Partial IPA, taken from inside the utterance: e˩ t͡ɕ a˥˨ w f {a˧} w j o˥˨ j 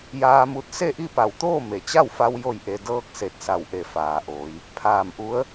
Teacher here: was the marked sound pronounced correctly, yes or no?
yes